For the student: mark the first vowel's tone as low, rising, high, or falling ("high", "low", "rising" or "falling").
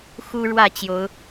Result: high